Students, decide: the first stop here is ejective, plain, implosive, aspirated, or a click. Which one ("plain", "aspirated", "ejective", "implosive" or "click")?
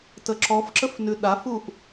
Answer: plain